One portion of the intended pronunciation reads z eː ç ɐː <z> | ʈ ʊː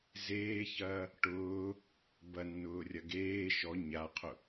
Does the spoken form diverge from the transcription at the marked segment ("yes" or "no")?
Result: yes